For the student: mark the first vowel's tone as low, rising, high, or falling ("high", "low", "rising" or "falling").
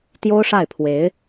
high